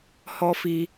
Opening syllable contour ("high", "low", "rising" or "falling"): high